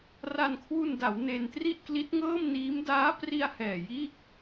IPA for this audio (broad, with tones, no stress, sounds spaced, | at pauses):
r a˧ n kʰ w u˧ n d a˩˦ w n e˧ n t r i˥˩ ʔ k l i˦˥ t̚ ŋ ɤː˥˩ m n iː˦˥ m d aː˦˥ p r i˧ a̯ h ɛː˨˩ j iː˥˩ k̚